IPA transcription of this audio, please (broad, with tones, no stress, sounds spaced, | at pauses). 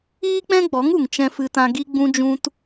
iː˦ k͡p ɛ̃˦ ɡ͡b ɔ˨˦ ŋ u˨ ŋ t͡ʃ ɛ̃˦ f ɨ˧ t ã˧ ɡ i˦ ɡ͡b ũ˧ d͡ʒ ũ˧ t